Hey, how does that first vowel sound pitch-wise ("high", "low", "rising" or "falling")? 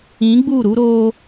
rising